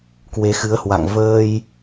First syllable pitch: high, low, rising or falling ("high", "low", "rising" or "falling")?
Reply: rising